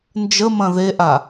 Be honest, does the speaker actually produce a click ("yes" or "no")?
no